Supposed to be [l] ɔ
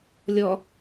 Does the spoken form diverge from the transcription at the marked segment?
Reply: yes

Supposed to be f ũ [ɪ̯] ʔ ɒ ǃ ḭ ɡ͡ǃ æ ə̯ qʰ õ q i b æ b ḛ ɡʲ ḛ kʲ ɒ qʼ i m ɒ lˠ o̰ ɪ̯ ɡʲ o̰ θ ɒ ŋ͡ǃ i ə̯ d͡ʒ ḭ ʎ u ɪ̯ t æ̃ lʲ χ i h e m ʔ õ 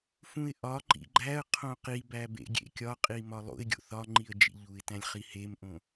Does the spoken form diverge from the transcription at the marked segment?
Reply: no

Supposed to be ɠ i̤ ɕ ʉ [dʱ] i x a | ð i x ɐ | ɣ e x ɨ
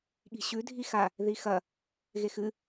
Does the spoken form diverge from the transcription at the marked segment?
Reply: no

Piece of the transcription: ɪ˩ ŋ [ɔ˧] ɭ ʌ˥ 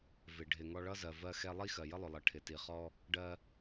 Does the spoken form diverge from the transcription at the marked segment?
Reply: no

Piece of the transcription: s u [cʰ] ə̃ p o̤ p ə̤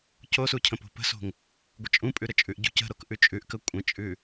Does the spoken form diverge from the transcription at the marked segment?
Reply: no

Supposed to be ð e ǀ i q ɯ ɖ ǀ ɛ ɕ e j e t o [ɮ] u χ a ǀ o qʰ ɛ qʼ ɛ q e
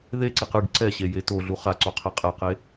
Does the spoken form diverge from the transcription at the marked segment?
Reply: no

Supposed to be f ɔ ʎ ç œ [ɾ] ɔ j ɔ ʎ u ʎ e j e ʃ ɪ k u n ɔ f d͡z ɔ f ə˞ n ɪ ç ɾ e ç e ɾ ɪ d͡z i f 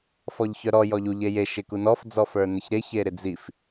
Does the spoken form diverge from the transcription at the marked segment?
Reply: no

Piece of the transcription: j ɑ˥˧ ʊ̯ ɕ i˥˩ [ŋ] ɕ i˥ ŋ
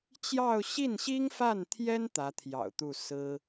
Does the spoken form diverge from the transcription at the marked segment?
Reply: yes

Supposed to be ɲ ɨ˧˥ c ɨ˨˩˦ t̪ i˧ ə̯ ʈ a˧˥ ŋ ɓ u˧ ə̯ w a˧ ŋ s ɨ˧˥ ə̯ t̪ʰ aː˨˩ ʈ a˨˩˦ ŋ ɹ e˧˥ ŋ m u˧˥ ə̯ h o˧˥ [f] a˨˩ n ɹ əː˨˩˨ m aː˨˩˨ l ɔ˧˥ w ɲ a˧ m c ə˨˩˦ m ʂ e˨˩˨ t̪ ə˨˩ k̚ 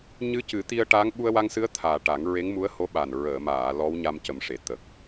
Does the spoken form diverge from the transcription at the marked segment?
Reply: yes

